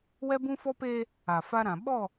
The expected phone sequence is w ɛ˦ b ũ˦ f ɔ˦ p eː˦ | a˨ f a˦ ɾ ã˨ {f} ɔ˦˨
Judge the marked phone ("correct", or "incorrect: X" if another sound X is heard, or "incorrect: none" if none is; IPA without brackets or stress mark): incorrect: ɓ